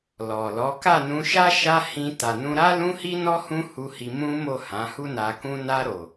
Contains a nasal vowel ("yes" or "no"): yes